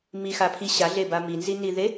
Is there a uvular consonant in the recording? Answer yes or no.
no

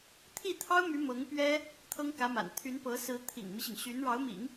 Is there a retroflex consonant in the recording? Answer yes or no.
yes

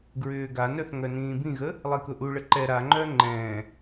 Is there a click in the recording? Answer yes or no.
yes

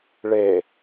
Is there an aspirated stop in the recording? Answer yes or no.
no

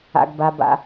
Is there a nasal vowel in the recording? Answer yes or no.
no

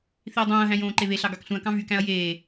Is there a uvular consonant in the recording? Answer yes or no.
no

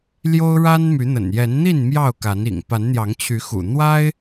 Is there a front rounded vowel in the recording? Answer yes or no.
yes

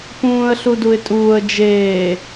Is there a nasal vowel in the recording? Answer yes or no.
yes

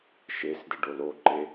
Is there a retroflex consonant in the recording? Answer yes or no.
yes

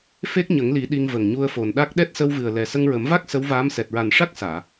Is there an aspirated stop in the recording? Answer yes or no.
no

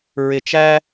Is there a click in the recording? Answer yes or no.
no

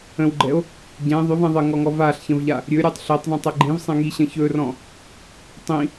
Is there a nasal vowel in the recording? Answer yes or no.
yes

